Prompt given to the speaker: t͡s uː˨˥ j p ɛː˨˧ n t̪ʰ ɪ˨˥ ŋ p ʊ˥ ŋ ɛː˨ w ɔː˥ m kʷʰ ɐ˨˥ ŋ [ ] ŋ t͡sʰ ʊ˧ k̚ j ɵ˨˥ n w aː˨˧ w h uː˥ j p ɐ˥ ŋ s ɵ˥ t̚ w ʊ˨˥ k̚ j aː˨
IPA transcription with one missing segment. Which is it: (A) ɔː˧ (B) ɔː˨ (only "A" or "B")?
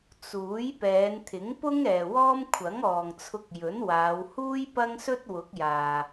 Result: B